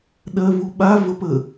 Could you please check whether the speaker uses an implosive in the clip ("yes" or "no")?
yes